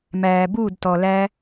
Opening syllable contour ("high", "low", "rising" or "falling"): low